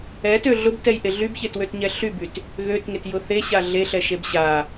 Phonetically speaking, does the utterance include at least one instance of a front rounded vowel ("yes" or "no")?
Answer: yes